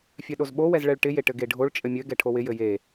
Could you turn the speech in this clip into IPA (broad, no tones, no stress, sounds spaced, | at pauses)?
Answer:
fʲ œ ɗ o z ɓ o w ɛ z ɭ ɛ ɭ ʈ ɪ j e ʈ ɘ ɡ e ɖʱ o ɭ t͡ʃʼ ɘ mʲ ɘ ɡ ɛ ʈʰ o w ɪ j ɘ j e